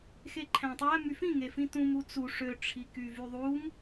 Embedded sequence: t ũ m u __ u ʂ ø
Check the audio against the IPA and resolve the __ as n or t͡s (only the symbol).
t͡s